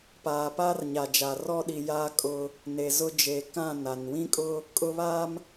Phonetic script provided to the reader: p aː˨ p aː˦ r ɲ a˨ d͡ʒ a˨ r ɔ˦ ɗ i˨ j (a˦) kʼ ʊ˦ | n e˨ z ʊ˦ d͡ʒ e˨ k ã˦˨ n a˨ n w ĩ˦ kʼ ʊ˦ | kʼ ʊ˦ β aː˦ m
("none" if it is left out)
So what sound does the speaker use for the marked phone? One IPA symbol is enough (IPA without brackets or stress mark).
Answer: a˦